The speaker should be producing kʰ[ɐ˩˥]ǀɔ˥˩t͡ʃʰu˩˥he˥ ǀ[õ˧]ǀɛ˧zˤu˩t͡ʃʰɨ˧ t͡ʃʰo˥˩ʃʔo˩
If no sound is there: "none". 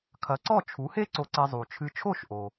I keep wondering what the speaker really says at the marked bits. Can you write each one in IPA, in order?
ɐ˩˥, o˧

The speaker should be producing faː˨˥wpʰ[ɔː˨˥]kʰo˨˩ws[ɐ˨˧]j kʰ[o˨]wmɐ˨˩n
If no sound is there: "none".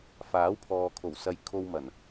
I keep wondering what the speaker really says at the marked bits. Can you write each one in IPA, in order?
ɔː˨, ɐ˨˧, o˧

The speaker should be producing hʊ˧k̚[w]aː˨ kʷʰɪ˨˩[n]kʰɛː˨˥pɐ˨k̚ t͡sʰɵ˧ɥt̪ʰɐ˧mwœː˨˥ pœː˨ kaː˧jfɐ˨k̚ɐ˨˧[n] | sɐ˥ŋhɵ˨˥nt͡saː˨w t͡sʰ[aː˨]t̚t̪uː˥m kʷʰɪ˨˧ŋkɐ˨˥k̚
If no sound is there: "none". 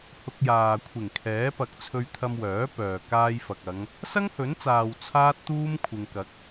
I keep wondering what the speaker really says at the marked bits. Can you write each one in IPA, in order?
j, ŋ, ŋ, aː˥

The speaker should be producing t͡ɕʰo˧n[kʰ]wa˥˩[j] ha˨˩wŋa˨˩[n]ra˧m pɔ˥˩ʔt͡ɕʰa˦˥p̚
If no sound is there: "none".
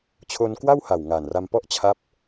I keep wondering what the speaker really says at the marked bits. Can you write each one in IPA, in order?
k, w, n

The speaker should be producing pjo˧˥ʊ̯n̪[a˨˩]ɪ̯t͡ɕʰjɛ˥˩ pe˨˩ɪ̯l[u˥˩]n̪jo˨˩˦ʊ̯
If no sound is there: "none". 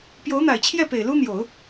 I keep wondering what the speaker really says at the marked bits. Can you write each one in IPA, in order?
a˨˩, u˥

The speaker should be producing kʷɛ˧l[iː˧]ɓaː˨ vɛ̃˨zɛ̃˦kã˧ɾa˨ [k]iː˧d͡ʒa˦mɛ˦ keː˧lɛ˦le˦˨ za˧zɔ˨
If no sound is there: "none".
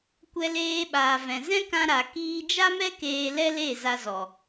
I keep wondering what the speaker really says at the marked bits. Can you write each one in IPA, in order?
eː˧, k

